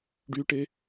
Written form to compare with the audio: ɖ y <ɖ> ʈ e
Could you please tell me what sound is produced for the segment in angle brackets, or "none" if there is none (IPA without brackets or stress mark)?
none